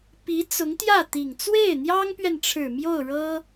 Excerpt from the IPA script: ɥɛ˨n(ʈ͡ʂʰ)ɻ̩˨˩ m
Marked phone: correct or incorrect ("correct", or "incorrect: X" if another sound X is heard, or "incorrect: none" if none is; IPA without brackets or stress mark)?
correct